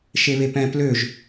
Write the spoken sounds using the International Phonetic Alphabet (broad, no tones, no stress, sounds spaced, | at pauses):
ʃ e β e p ɛ̃ p l ø ʒ